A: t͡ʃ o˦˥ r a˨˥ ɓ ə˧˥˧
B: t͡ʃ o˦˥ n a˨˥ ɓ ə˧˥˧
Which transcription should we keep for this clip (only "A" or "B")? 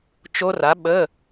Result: A